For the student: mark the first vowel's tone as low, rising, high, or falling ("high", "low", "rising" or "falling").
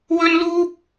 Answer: high